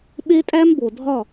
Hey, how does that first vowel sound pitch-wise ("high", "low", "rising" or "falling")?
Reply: high